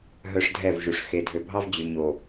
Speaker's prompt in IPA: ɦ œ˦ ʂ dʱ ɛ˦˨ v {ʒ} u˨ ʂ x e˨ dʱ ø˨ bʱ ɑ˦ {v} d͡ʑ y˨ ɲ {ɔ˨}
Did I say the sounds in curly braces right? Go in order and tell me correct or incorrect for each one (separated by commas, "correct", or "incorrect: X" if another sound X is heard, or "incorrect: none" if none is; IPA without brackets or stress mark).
correct, correct, incorrect: o˨